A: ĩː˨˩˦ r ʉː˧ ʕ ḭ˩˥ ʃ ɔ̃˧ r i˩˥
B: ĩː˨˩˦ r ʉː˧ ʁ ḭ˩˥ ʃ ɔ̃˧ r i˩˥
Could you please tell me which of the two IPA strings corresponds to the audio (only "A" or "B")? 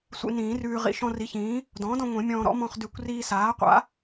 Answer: B